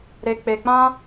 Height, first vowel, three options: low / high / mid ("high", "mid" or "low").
mid